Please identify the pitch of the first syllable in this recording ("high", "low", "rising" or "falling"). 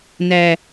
high